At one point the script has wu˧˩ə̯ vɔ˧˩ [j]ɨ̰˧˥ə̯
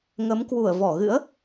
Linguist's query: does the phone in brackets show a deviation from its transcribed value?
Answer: yes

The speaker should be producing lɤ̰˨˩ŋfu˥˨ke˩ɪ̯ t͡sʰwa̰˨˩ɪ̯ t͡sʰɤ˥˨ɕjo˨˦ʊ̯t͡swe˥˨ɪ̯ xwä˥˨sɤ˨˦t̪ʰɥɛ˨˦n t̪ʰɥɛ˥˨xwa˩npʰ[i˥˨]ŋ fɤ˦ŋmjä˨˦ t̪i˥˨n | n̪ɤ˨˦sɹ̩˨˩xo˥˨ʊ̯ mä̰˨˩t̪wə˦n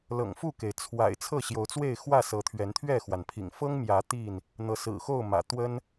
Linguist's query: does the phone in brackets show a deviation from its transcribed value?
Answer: yes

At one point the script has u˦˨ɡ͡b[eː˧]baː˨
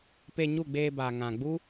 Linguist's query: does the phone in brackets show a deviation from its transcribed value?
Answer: no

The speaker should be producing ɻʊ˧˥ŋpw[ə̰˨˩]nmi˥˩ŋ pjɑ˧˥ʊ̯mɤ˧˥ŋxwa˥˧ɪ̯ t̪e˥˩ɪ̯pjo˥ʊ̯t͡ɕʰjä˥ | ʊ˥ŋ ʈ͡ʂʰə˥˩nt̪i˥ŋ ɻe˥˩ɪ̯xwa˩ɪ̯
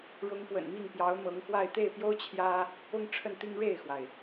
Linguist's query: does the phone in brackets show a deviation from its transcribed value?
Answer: no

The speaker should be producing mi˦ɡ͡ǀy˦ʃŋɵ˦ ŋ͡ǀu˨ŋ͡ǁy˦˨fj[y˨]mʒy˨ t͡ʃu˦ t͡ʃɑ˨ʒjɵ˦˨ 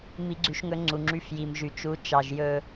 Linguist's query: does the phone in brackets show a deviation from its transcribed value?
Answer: yes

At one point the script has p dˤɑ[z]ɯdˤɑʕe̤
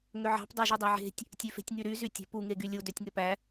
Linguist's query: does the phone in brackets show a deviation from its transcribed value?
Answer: yes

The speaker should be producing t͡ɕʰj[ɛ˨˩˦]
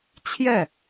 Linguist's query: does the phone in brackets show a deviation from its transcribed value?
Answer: yes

